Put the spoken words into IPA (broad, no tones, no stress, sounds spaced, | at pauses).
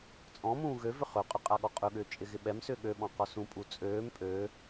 t͡sʼ ɔ̃ m ũː ɣ ø v ʏ χ ɵ qʼ ʏ qʼ a ɠ ɔ qʼ ɵ ɠ ʏː t͡ʃʼ ɪ ɣ ɪ ɓ ɛ m s ʏː ɠ ø ɓ ɔ̃ q ɔ s ũ pʼ u t͡sʼ øː m pʼ ø